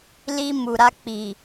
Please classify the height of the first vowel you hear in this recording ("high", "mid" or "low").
high